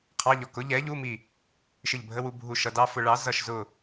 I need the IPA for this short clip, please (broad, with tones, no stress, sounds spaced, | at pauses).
qʰ ɑ˧˥˧ ʎ ɔ˧˩ k ʊ˨˥ ʎ ɛ˨˥ ʎ u˧˥˧ m i˧˩ | ʃ ɪ˧˩ ʎ bʱ ə˧˥˧ w u˧ bʱ u˧˩ ʃ ʌ˧ d ɑ˧˥˧ f ʊ˧ ɭ ɑ˨˥ z ʌ˧˩ ʃ z ʊ˧˩